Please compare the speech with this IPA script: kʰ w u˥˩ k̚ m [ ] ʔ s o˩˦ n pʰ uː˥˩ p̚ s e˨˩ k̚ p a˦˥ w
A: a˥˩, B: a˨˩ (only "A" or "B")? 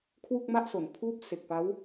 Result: A